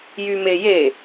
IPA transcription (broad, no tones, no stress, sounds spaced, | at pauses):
j y m e j e